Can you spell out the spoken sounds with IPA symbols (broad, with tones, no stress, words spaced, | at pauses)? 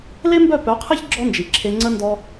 le˦mbœ˦˨pœ˨˦qʰe˦ç ɡ͡ǁɔ˦nd͡ʒi˨ǁʰe˧ ŋ͡ǀə˦ndɔ˦